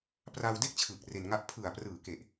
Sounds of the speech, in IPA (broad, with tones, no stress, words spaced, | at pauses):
pra˧wde˥˩k̚t͡ɕʰɯː˨˩k̚ re˧nŋa˥˩ʔ pʰɯ˨˩a̯prɯː˩˦ke˨˩ʔ